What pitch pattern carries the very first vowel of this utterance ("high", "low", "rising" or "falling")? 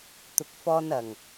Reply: low